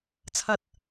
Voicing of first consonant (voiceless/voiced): voiceless